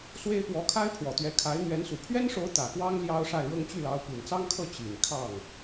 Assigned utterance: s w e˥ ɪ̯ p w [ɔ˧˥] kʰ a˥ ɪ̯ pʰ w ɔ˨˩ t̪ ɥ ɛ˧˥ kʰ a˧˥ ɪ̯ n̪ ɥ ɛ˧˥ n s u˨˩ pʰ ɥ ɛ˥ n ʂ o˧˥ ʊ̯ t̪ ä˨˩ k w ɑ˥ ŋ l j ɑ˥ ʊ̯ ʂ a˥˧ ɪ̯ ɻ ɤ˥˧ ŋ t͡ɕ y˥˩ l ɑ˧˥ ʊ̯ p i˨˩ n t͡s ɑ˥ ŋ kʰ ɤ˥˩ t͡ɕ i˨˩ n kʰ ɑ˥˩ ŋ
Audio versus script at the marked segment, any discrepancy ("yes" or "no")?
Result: no